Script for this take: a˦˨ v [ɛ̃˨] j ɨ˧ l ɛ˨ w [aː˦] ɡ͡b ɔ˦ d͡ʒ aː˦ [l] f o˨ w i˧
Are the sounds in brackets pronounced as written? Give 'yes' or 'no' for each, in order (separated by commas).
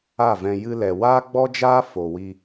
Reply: no, yes, no